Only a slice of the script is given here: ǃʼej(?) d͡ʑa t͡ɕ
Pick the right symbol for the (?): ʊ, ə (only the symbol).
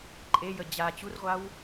ə